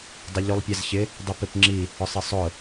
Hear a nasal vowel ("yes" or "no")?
no